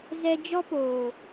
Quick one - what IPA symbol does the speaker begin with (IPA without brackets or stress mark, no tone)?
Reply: z